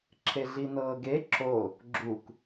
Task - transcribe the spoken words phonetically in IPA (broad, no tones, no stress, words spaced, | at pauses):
ǁʰeɮinɤːɡe ǁo | ɡ͡ǁuk